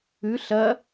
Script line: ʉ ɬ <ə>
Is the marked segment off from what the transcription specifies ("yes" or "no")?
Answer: yes